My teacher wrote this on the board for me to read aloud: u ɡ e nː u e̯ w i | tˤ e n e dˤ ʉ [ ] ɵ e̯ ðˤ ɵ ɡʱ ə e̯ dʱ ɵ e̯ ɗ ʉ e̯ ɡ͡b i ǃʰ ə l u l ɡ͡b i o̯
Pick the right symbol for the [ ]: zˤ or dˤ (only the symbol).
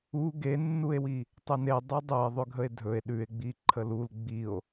dˤ